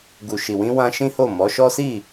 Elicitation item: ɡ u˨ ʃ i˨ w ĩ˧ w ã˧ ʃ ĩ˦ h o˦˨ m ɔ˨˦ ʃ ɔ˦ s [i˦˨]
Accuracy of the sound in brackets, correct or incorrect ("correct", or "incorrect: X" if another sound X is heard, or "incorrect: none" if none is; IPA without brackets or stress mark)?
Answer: correct